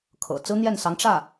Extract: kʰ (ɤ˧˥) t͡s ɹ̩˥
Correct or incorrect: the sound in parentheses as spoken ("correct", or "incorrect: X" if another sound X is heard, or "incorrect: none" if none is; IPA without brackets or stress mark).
incorrect: ɤ̰˨˩